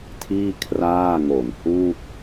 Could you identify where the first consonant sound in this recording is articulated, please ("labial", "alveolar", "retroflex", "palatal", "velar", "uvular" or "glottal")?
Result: alveolar